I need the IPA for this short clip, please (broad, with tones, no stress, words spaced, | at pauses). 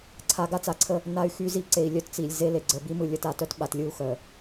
ǀʰa˨ ɡa˦t͡sa˨ǀʰə˦ | na˦y̯xy˦zi˦ ǀe˨i̯lʲœ˦tt͡si˨lʲ ze˦le˨ɡ͡ǀə˨ bi˦mɯ˨ lʲə˨ta˦˨tœ˦t ɓa˨tlʲɯ˦˨u̯ xœ˨